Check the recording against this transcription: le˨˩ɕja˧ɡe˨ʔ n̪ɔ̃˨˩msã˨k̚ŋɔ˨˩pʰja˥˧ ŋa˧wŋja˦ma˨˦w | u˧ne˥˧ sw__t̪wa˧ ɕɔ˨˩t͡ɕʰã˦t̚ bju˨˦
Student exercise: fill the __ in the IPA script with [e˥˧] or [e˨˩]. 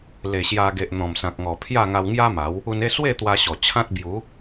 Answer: e˥˧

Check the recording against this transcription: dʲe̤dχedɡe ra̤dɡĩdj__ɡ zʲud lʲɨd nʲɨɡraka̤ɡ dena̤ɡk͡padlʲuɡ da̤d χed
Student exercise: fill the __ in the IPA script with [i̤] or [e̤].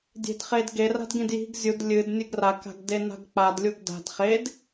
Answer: i̤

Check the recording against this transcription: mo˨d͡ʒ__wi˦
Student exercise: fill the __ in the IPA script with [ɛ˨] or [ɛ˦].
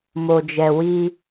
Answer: ɛ˨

